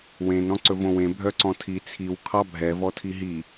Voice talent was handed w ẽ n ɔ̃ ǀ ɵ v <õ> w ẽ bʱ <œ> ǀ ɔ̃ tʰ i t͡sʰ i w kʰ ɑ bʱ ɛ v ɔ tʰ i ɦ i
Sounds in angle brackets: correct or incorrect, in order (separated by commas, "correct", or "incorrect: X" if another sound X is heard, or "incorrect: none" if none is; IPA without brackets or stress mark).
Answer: correct, correct